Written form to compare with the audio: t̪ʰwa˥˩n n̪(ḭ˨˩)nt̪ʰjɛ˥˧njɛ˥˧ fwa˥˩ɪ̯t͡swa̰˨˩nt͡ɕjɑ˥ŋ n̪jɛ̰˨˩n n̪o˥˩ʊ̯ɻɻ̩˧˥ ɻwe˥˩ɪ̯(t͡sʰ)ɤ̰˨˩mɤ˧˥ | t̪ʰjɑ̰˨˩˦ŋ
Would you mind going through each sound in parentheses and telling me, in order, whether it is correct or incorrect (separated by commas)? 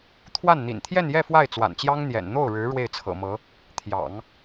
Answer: correct, correct